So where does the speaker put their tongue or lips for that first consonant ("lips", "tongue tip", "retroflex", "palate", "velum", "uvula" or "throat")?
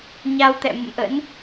palate